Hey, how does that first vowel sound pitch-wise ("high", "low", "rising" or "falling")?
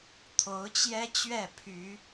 rising